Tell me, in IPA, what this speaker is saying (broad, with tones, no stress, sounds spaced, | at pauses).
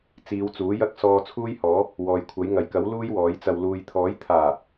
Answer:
t͡s iː˨˧ w t͡s uː˨˥ j ɐ˥ k̚ s ɔː˧ t͡sʰ uː˥ j h ɔː˨˥ | w ɔː˨ j kʷʰ ɐ˨˥ j ŋ ɐ˨˩ j k ɐ˨˥ w l uː˥ j w ɔː˨˥ j t͡s ɐ˧ w l uː˨ j t̪ʰ ɔː˨˥ j t̪ʰ aː˨˩